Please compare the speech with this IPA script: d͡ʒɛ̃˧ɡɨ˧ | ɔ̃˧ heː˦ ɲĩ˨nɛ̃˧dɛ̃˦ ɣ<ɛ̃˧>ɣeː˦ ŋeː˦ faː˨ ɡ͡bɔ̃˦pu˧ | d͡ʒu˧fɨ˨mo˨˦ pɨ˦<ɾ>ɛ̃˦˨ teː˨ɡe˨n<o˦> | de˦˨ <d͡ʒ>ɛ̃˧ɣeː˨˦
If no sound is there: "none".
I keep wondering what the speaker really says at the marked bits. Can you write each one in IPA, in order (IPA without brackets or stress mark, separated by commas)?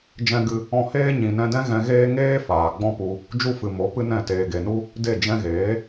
ɛ̃˧, n, u˦, d͡ʒ